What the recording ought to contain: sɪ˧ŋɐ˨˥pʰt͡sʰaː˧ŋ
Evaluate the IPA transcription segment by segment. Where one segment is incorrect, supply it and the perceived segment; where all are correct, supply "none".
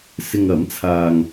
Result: pʰ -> m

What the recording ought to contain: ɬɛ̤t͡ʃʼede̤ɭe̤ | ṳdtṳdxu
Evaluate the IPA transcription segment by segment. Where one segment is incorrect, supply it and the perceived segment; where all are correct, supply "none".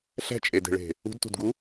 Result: x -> ɡ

